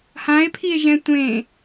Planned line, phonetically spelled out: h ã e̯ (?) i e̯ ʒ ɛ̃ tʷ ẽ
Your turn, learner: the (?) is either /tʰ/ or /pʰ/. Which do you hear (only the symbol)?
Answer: pʰ